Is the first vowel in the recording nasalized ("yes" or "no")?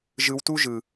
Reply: no